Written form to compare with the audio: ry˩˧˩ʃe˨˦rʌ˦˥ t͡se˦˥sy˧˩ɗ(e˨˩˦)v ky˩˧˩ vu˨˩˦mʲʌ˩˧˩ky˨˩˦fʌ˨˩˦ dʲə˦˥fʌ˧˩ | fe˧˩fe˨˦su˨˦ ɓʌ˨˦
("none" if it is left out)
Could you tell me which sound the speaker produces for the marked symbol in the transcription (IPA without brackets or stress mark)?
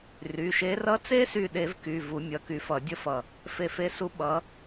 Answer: e˨˩˦